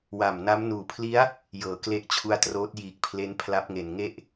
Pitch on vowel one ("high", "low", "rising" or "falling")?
low